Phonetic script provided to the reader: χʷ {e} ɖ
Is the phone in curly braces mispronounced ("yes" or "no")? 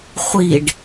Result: yes